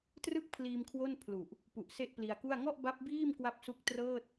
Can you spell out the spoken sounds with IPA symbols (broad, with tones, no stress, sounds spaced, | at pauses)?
t r ɯ˥˩ k̚ pʰ l iː˧ m kʰ w o˥˩ n pʰ l u˨˩ ʔ | p u˨˩ ʔ s e˥˩ ʔ p l i˧ a̯ k u˥˩ a̯ ŋ ɔ˥˩ ʔ b a˦˥ p̚ b iː˥˩ m k w a˦˥ p̚ s u˦˥ k̚ t r ɤː˥˩ t̚